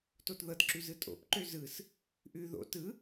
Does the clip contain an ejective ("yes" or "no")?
yes